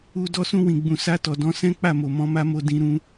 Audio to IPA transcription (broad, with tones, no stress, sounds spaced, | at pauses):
u˧ d ɔ˧ s ũ˧ w ĩ˨ ɡ͡b ũ˨ s a˧ t ɔ˨ d ɔ̃˨˦ s ɛ̃˦ k͡p a˦˨ m o˨ m ɔ̃˧ m a˦ m o˧ d ĩ˧ ɾ ũ˦